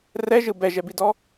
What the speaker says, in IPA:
r ɛ ʒ ɯ b ɛ ʒ ɛ b i d ɔ

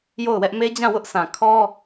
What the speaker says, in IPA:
j o˦˨ ʊ̯ w ɛ˦ ʔ m e˦ d͡ʑ ã˦˨ w ʊ˦ ʔ sʰ ã˨ kʰ ɔ˦

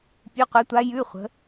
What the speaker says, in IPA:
pʲ ʉ˩˧˩ qʷ ɛ˩˧ tʷ a˩˧ j ʉ˩˧˩ χʷ ə̤˩˧

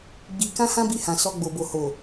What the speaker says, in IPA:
ɡ͡b i˧ k ã˦ h ã˦ b i˧ h ã˨ s ɔ˧ ɡ͡b o˨ b o˨ h o˨

